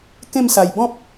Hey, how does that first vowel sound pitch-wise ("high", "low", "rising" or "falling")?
falling